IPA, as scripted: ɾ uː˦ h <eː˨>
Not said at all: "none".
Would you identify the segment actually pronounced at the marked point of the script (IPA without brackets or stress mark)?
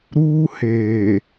eː˨